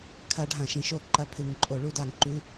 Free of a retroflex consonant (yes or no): no